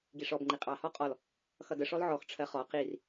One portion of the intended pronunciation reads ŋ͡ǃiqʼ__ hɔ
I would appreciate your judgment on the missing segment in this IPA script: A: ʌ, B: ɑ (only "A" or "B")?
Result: B